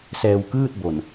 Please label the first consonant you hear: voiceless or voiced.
voiceless